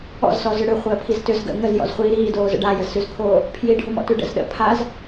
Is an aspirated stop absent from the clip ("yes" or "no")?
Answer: no